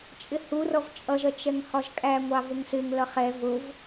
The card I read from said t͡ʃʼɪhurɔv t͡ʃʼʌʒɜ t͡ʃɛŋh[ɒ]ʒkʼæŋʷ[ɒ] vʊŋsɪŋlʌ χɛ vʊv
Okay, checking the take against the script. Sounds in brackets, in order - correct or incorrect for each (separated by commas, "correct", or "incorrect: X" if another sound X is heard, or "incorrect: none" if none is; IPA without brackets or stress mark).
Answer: correct, incorrect: ɑ